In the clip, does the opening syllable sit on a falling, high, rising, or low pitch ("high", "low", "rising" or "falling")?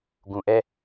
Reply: low